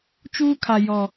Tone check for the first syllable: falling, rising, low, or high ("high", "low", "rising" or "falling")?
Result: high